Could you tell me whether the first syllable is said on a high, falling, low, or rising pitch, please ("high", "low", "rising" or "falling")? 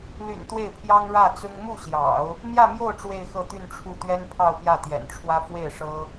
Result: low